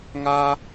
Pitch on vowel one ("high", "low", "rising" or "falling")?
high